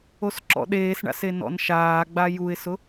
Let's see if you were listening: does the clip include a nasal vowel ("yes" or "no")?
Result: no